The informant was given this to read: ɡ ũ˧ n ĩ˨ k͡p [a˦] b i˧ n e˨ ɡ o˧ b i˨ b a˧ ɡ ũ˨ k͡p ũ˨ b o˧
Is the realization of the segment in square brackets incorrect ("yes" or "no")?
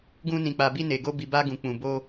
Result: yes